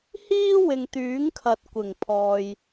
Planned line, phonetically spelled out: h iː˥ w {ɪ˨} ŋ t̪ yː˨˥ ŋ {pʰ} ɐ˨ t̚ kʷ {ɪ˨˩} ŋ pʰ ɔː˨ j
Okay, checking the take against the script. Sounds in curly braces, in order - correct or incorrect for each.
correct, incorrect: kʰ, correct

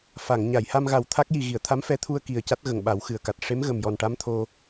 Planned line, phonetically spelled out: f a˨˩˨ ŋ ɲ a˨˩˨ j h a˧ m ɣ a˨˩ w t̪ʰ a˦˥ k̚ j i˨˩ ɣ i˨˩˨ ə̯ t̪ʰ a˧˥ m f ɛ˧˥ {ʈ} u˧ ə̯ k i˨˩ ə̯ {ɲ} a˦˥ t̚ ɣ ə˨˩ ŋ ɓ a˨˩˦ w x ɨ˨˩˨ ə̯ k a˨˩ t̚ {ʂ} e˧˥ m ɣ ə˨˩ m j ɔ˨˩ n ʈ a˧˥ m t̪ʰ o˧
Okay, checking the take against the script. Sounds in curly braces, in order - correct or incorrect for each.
incorrect: t̪ʰ, incorrect: c, correct

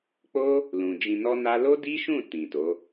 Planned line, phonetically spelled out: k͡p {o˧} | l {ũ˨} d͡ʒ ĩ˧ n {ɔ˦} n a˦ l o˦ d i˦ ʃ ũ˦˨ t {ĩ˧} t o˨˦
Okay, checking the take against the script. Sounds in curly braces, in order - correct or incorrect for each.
incorrect: o˦, correct, correct, incorrect: ĩ˨

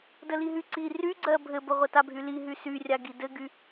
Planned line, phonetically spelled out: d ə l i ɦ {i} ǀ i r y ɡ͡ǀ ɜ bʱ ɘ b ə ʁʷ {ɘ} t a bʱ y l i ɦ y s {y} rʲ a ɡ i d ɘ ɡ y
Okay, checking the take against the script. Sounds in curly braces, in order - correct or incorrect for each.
incorrect: y, correct, correct

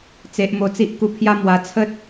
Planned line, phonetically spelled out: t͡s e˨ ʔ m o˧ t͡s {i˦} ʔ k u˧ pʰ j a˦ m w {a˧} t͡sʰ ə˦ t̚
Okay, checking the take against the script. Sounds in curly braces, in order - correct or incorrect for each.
correct, correct

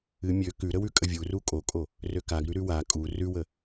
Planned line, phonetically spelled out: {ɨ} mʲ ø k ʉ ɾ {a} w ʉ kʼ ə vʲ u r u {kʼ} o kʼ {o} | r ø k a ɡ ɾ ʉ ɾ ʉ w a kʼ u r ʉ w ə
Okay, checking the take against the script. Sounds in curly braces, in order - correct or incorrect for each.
correct, incorrect: ə, correct, correct

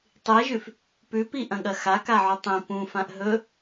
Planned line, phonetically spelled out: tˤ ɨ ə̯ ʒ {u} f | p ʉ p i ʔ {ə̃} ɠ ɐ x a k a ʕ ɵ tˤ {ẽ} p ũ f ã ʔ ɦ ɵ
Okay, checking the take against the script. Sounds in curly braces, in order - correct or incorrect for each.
incorrect: ʉ, incorrect: ɐ̃, incorrect: ĩ

